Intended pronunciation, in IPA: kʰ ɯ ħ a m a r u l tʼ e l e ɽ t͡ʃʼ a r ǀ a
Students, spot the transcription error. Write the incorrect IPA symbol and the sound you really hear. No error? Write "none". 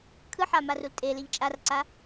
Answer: ɽ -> ʎ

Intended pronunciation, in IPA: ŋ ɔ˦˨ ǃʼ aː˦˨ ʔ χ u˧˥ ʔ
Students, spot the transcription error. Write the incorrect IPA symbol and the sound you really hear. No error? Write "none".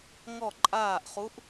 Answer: none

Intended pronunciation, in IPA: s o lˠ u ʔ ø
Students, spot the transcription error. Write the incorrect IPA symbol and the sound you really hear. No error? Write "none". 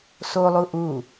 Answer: ø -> u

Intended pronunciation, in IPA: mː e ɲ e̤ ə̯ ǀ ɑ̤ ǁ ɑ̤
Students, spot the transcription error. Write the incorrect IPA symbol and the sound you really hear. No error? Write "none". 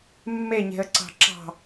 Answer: none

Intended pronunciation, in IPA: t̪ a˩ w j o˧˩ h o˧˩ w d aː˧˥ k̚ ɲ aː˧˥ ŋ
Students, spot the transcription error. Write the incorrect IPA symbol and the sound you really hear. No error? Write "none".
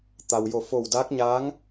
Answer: h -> f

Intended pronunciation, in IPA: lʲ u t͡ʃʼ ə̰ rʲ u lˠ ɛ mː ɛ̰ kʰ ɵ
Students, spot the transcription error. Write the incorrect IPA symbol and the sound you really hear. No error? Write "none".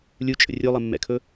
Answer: none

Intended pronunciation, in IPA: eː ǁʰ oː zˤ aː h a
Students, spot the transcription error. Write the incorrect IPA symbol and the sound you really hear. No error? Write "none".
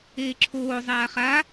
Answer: h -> χ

